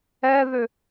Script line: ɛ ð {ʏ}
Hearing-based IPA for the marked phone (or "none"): ʏ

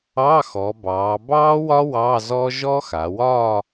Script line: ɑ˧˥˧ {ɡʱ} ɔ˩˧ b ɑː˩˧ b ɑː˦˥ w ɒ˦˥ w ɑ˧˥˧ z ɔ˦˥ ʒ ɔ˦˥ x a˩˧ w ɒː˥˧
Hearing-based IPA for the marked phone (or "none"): x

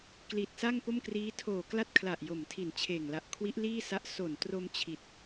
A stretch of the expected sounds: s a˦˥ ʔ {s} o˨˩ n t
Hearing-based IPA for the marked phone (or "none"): s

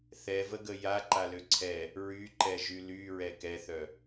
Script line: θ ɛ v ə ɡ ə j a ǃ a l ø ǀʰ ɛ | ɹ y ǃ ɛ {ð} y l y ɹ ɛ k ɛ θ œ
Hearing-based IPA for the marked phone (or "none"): ʒ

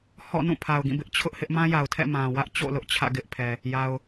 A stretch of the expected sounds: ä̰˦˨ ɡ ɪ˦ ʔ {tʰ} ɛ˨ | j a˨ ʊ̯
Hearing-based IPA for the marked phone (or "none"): pʰ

